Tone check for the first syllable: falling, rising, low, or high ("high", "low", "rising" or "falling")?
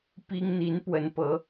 high